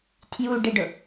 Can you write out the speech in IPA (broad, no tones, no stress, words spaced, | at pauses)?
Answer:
tʰjuɖɪɖʊ